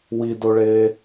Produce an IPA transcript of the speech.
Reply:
w i d o ɭ eː

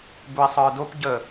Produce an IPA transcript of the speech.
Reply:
b u i̯ sˤ ə˞ d o p ɟ ə

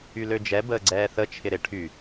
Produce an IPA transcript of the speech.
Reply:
y l ø d͡ʒ ɛ b əː ɡ͡ǀ ɛː θ ə t͡ʃʰ ɪ ɾ ɪ ʈʰ y

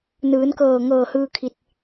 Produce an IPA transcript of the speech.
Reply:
n ɯː˩˧ n k ɤː˧˩ ŋ ɤː˧˩ h ɯː˧ kʰ i˧˩ t̚

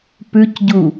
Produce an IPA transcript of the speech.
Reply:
p ʉ c ɟ u

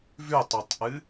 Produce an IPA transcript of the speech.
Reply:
v ʉ tˤ u tˤ ʔ ɨ

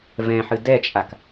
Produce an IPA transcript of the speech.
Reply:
v ɛ̃ ħ ɨ d ɛ t͡ʃʼ a k

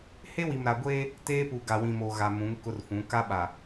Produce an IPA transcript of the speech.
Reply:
h e˦ w i˨ m ɾ a˨ ɡʷ eː˦ | t eː˦ p u˨ ɡ a˨ w ĩ˨ m o˨ ɣ a˨ m ũ˨˦ ŋ k ʊ˦ r f ũ˨˦ k a˦ ɓ a˨

